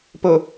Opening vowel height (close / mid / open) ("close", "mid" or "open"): mid